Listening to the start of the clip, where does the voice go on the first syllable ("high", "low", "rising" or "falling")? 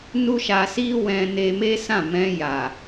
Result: high